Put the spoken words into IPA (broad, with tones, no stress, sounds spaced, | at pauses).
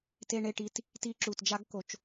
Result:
t e˧ ɳ e˧ ʈ i˧ t | t i˧ ǁ u˨ t d͡ʒ a˦ ɡ k o˧ t͡ʃ